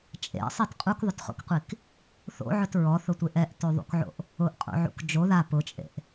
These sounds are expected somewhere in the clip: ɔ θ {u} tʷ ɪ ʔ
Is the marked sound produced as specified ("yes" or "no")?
no